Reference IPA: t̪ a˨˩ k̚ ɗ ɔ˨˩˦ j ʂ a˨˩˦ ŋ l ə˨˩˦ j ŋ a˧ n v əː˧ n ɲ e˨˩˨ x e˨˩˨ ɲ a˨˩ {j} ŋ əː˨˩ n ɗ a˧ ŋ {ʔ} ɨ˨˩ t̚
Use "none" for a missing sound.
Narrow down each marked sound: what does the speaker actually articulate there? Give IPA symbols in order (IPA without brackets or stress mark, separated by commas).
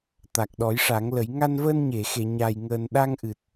j, ʔ